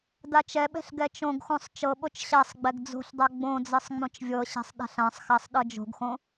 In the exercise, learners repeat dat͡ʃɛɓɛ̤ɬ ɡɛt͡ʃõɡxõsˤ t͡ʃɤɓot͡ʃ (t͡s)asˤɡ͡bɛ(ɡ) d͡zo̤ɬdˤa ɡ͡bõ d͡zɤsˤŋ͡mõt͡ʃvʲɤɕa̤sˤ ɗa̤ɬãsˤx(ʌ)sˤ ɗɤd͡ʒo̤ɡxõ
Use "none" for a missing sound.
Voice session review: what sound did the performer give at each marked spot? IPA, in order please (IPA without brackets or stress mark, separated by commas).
ɕ, ɡ, a